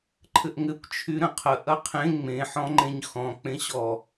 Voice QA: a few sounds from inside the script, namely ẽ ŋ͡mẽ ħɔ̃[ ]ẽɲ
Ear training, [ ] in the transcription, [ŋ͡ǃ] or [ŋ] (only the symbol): ŋ͡ǃ